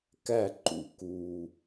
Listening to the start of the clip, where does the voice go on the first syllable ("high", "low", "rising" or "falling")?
falling